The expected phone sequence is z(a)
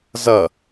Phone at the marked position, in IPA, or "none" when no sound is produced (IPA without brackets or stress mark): ʌ